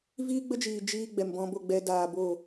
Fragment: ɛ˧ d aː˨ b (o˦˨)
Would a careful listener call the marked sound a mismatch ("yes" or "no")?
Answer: no